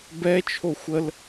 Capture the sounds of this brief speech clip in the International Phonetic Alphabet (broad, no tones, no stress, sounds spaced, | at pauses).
b ɛ t͡ʃʰ o xʷ ə l